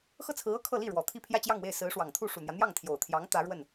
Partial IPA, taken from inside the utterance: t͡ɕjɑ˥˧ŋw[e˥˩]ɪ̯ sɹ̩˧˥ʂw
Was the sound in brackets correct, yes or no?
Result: yes